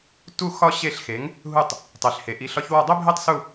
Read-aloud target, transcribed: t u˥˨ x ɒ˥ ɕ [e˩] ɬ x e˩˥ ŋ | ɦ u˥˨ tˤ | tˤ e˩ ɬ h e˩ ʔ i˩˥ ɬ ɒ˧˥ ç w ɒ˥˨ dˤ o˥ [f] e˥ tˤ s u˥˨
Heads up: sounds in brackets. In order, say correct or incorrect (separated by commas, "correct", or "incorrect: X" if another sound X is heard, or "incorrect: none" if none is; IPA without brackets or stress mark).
incorrect: e˥˨, incorrect: bʱ